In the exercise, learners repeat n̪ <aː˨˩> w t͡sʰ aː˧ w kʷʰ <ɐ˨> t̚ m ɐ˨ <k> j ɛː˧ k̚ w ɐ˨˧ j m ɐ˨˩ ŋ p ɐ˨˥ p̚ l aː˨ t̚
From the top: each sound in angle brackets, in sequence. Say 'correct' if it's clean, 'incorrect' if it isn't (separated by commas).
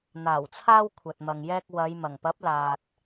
correct, correct, incorrect